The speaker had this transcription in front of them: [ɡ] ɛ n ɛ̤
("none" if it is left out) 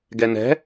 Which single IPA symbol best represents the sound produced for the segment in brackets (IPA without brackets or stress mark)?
ɡ